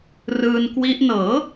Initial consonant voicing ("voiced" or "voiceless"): voiced